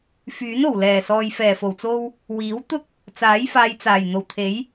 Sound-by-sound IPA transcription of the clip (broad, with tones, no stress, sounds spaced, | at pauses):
f yː˨˥ n o˨˩ w l ɛː˨˩ s ɔː˨ j f ɛː˨˩ f o˨˩ w t͡s o˧ w | w iː˨˥ w t̪ ʊ˥ k̚ | t͡s aː˨˥ j f aː˨˧ j t͡s aː˨˩ j n̪ o˨˩ w t̪ʰ e˨˥ j